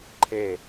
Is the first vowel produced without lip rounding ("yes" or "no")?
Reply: yes